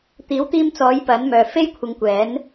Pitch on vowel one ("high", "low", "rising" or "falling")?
rising